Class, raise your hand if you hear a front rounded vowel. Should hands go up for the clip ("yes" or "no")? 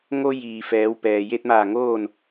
no